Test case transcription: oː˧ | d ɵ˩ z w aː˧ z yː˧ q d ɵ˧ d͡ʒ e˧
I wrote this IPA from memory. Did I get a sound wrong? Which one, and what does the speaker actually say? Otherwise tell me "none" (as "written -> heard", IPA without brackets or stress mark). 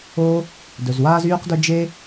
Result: none